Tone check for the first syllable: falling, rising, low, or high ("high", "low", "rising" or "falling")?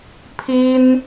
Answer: high